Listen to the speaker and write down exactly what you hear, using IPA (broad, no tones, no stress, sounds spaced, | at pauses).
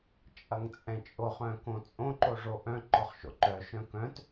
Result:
t͡ʃʼ ɐ ŋ t͡sʼ ɛ̃ t͡ʃʼ o χ œ̃ k õ t͡sʼ õ ǃ o ʐ o ʔ œ̃ ǃ ɔ χ ʃ o̰ ǃ œ ʃ œ̃ k œ̃ t